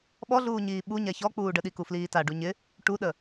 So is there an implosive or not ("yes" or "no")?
yes